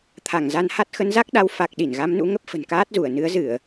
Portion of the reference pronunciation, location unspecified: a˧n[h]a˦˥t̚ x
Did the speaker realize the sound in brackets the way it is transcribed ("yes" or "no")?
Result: yes